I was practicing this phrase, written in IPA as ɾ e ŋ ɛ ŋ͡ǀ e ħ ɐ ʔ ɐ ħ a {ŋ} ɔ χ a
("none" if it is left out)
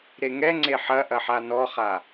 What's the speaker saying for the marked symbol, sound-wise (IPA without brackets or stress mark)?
n